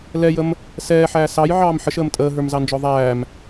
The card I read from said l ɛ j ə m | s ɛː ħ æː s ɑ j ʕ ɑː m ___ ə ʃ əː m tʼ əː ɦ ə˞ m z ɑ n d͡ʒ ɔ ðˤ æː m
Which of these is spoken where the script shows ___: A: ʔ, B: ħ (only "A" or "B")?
B